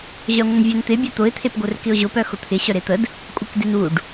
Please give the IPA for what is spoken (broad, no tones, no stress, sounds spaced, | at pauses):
ʑ œ ŋʷ ə n vʲ œ n t̪ ɪ bʲ œ t̪ ʊ ɪ̯ t̪ʰ e p ɡʷ œ r k ɪ ʊ̯ ʑ ʊ p œ x ʊ t̪ʰ ɪ ɕ œ ɾ e t̪ ə d | kʷʼ ɪ k d ɪ n u ɖ